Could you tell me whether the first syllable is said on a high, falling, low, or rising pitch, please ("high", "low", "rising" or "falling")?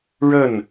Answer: falling